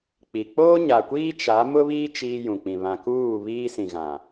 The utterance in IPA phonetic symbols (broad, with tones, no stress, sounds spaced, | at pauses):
k͡p i˨ k͡p oː˦ ɲ a˨ kʷ iː˦ t͡ʃ a˨˦ m ʊ˦ β iː˦ t͡ʃ iː˦ j ũ˨ k͡p ĩ˨ β ã˨ k uː˦˨ β iː˦ s ĩ˨ ɣ ã˨